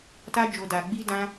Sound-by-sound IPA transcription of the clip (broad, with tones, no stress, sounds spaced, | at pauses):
t a˦ d͡ʒ o˧ d a˧ ɡ͡b i˦ d ã˦